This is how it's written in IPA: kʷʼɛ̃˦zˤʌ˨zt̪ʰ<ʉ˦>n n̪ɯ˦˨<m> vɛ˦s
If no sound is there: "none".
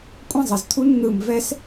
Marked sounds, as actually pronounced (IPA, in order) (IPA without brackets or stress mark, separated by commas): u˦, m